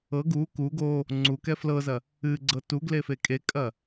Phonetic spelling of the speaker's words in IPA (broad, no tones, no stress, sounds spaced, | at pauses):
ɤ ɡ u k u ɡ o | ŋ͡ǀ u k ɛ f l ɤ z ɐ | ɨ ɡ͡ǀ ɤ t u ɡ l e f e kʼ e kʼ ɐ